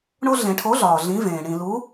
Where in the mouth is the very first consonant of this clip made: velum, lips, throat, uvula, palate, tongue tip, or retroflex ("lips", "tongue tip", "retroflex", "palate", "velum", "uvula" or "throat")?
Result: retroflex